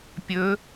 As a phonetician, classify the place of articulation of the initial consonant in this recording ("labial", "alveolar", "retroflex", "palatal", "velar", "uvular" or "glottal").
labial